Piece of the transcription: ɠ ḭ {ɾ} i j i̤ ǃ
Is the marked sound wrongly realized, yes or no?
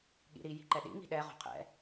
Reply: no